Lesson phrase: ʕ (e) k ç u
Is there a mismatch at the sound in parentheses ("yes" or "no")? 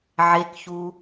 no